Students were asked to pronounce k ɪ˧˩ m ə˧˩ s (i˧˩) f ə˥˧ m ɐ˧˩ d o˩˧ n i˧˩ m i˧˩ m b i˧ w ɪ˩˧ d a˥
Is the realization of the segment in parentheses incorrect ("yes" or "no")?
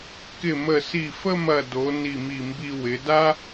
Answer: no